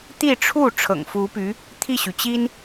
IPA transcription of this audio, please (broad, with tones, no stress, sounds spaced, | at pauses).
t̪ i˥˧ ʈ͡ʂʰ u˥˩ ʈ͡ʂʰ ɤ̰˨˩ ŋ f u˧˥ p y˧˥ | t̪ʰ i˥˩ ɕ y˩ t͡ɕ i˥ n